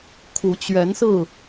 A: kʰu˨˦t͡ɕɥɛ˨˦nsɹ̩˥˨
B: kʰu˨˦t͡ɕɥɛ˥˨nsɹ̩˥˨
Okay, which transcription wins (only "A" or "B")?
A